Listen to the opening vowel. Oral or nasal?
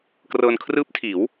oral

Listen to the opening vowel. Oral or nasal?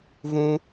nasal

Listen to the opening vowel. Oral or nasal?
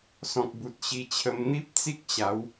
nasal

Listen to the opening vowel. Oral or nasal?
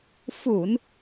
oral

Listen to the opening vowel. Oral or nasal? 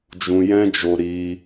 nasal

